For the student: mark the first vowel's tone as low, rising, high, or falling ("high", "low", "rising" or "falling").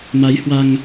rising